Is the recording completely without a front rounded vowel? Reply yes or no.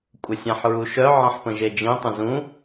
no